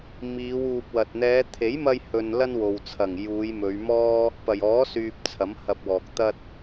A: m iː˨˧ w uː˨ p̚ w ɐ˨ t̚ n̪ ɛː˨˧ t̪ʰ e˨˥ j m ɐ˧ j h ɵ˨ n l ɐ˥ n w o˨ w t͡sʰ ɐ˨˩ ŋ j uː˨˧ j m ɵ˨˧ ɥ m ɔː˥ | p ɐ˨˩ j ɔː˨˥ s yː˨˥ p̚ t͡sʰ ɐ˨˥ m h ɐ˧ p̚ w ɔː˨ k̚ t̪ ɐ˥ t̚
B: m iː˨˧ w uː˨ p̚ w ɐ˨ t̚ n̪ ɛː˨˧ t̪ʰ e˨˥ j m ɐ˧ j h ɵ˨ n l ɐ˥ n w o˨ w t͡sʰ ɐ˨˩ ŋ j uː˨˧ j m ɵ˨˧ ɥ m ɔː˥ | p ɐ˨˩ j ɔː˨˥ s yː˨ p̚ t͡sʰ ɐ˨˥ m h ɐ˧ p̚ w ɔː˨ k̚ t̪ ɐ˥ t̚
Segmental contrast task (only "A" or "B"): B